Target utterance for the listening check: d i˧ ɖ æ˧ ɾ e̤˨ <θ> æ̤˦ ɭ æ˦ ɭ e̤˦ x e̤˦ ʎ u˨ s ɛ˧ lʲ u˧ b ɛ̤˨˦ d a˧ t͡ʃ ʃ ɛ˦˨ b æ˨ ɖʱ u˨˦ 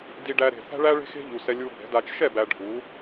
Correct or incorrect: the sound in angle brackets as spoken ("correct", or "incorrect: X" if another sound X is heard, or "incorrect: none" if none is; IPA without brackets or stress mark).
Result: correct